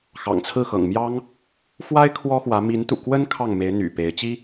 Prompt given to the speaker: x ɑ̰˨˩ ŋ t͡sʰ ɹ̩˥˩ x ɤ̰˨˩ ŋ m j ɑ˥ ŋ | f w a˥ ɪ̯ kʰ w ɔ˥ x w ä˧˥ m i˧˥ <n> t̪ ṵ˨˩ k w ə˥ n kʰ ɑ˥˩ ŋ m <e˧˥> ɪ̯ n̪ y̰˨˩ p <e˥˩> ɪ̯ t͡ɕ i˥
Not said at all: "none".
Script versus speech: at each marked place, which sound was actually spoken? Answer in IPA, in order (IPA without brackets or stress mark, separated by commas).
n, e˧˥, e˧˥